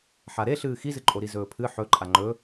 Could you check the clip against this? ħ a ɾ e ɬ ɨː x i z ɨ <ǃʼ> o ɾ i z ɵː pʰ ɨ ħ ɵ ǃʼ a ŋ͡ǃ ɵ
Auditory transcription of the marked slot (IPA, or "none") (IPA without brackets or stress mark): ǃʼ